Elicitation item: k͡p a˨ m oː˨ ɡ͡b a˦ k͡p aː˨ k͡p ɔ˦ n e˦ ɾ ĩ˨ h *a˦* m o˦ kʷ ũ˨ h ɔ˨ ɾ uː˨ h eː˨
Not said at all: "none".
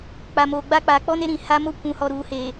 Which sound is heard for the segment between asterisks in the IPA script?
a˦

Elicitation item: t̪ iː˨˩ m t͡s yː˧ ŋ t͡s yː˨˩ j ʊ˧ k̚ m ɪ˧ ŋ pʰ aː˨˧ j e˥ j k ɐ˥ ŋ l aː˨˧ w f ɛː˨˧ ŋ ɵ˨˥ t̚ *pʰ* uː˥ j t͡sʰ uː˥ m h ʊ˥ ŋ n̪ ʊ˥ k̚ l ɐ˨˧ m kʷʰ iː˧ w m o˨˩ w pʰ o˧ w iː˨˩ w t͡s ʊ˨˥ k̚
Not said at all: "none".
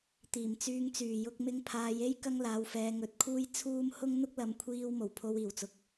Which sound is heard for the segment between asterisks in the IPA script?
kʰ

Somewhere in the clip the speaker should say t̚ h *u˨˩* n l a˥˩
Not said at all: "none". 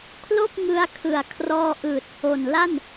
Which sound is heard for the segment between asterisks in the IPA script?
o˨˩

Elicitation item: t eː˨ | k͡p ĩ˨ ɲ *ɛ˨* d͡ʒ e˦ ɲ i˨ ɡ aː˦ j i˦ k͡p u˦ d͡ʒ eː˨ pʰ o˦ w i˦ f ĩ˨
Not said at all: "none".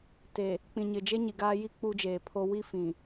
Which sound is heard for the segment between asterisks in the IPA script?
ɪ˨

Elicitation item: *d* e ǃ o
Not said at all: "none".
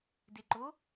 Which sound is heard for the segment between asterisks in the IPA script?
d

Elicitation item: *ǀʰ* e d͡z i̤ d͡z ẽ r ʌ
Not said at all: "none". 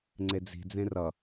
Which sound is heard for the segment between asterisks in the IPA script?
ŋ͡ǀ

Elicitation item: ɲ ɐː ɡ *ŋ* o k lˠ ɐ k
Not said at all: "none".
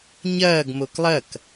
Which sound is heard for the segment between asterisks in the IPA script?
m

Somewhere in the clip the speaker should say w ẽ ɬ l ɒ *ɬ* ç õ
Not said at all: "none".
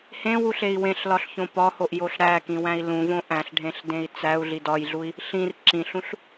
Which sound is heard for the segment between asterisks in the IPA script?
ɬ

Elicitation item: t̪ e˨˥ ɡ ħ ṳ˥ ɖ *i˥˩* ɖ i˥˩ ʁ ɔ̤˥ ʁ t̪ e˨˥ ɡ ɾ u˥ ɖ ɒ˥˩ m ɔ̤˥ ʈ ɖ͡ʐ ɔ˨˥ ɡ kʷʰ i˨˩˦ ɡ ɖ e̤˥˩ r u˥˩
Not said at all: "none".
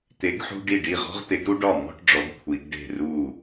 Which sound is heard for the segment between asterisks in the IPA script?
i˥˩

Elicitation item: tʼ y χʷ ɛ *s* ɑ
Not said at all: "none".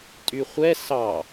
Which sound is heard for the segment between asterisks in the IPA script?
s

